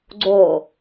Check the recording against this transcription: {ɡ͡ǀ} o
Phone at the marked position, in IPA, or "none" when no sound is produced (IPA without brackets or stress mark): ɡ͡ǀ